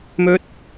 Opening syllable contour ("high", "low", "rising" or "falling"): high